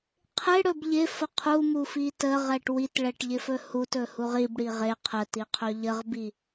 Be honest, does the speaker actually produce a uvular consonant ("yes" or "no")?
yes